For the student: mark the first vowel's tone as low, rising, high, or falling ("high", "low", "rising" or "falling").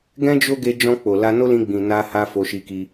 high